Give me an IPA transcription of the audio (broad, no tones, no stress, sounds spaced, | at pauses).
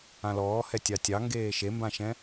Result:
ã l ɔː h ɛ tʲ ɑ tʲ ɑ ŋ ɡ eː ʃ e m b ã ʃ ɛ̃